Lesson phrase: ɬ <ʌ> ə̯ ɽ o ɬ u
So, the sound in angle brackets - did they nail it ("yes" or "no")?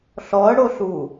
no